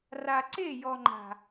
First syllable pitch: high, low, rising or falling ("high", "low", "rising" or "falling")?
low